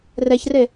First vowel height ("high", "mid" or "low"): mid